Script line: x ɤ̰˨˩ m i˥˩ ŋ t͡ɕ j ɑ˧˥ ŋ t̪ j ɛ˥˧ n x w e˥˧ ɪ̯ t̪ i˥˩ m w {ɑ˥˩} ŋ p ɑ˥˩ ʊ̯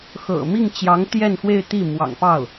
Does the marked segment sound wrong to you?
yes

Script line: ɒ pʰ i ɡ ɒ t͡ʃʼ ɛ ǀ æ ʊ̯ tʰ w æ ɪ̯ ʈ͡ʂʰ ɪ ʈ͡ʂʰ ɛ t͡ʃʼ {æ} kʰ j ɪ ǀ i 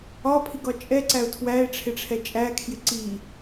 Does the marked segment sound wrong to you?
no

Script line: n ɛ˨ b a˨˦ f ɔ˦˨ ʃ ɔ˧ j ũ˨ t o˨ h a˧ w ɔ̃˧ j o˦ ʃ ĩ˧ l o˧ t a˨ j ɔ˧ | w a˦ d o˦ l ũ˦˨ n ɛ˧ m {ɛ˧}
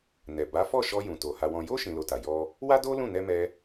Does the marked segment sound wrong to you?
no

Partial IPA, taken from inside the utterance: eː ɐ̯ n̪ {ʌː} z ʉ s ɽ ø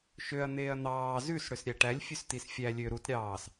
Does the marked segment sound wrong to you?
yes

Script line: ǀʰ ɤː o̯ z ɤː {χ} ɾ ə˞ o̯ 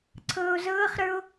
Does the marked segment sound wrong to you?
no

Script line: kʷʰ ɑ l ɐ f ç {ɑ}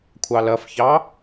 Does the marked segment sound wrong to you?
no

